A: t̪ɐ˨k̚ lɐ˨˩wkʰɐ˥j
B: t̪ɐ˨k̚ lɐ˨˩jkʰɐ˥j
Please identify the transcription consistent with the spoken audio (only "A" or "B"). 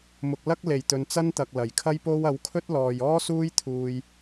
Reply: B